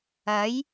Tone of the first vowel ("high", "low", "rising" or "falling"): rising